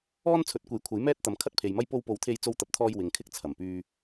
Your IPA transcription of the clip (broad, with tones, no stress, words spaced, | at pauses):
ɔː˥n t͡sʰɵ˨˥t̚kʷe˨˥jkʷʰɐ˨˥j mɛː˥t̚ t̪ɐ˨˧m kʰɐ˥t̚pʰe˨jmɐ˥j po˧wpo˨˥wt̪ʰe˧j t͡so˧wt̪ɐ˨p̚t̪ʰɔː˧j wɪ˨ŋkʰɪ˥k̚ t͡sʰɐ˨˩mpyː˧